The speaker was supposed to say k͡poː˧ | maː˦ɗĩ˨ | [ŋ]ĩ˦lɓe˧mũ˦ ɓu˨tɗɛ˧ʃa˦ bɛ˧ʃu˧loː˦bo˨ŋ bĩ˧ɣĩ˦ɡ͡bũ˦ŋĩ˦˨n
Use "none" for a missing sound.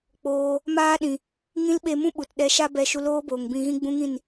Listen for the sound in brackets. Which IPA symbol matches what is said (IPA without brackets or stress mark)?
ŋ